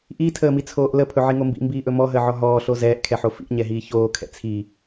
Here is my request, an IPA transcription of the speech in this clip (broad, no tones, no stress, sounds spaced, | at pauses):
ʔ i tʰ əː m i t͡sʰ oː ʔ l ə pʰ ɵ ʕ i ŋ o m b ḭ m b iː ʔ ɵ m ɔ ɦ əː ʕ ɔ ɦ ɔː ɬ o z ɛː ʔ kʰ ɛ ħ o f ḭ ʔ ɲ ɛ ɦ iː ç oː kʰ ɛ̰ t͡sʰ i